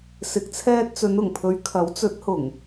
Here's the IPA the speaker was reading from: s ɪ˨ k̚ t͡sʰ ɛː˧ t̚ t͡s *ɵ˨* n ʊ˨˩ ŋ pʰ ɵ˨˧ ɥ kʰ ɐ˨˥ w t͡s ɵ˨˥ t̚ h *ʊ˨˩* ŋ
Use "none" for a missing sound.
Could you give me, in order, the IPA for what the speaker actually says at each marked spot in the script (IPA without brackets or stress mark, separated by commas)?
ɵ˨˧, ʊ˨˩